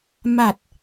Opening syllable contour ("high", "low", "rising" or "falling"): low